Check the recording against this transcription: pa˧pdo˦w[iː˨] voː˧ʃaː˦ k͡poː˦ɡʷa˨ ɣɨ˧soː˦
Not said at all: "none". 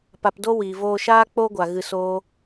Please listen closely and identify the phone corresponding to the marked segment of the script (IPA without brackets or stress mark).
iː˨